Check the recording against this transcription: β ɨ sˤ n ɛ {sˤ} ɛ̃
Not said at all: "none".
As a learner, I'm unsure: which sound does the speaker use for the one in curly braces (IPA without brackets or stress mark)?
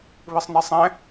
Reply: sˤ